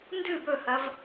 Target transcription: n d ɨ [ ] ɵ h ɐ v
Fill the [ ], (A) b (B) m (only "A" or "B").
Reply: A